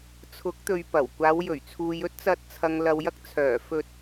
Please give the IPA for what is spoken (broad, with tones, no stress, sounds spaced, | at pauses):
t͡sʰ ʊ˨˥ k̚ t̪ ɵ˨ ɥ p ɐ˨˩ w kʷ aː˨˧ w j ɵ˨˩ ɥ t͡sʰ uː˨ j ɵ˥ t̚ t͡s ɐ˧ t̚ t͡sʰ ɐ˨ ŋ l ɐ˨ w j ɐ˧ k̚ t͡sʰ œː˨˩ f ɵ˧ t̚